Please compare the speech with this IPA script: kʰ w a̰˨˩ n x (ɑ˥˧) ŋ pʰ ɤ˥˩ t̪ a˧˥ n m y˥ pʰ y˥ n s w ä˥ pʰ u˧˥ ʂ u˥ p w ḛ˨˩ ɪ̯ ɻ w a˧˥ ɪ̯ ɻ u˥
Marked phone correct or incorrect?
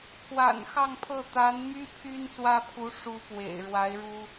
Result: correct